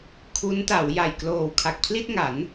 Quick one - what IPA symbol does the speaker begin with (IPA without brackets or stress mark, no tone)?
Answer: kʰ